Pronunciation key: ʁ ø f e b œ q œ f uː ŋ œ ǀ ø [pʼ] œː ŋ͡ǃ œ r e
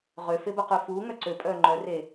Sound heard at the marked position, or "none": pʼ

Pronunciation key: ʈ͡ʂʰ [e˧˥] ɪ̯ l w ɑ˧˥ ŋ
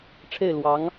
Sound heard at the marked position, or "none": e˥˩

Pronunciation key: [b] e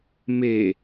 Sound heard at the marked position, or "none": m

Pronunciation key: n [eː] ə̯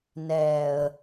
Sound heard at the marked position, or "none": ɛː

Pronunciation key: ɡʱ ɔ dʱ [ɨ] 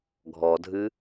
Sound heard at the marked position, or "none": ɨ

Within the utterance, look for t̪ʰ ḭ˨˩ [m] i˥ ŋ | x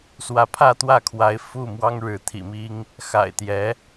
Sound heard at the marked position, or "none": m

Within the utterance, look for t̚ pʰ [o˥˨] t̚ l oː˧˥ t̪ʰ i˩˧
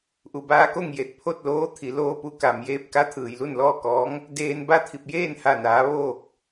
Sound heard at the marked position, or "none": o˥˨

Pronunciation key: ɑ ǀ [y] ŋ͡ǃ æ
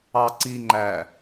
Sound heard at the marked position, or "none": i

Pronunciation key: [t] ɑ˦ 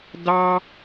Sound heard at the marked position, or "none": d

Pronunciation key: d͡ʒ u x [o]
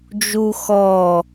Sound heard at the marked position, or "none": ɔ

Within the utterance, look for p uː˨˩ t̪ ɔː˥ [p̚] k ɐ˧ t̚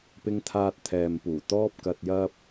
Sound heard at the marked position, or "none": p̚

